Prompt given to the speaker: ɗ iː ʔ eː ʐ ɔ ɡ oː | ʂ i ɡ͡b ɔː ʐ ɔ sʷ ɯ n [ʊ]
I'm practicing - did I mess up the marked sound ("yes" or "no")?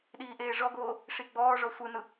yes